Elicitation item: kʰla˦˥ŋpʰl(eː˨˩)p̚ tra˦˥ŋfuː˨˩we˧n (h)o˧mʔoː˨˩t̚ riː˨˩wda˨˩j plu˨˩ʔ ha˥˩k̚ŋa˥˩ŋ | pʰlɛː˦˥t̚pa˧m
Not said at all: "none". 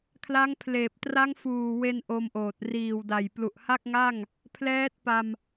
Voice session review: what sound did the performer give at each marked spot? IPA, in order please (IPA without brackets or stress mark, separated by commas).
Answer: eː˨˩, ʔ